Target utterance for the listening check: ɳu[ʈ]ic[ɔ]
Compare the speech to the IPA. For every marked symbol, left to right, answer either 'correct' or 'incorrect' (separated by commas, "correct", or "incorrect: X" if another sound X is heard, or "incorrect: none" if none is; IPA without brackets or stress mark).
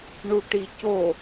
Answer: correct, incorrect: o